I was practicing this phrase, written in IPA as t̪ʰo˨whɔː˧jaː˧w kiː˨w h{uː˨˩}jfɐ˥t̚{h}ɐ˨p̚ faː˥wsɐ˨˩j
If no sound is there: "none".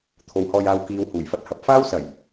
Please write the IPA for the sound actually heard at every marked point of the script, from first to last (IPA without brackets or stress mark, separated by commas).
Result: uː˨˩, h